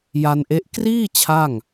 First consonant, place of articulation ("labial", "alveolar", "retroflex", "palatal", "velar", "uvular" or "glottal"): palatal